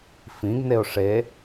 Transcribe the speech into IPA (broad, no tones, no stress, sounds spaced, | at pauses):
f ĩ ɡ n e ʊ̯ ʂ e